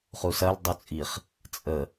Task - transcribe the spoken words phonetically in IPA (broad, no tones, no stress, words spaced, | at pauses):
χusɐl dˤut͡sʼiχ | t͡sʼə